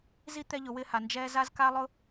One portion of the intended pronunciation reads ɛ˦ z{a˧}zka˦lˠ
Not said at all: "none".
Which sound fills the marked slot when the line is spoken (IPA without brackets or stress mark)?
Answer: a˦